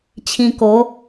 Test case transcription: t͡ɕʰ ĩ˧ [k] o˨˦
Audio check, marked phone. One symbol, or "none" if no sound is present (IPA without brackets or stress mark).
k